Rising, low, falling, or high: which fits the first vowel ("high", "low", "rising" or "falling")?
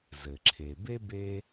low